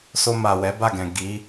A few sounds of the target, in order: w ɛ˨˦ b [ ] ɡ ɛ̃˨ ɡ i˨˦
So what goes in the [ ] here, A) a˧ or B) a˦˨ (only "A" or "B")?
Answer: B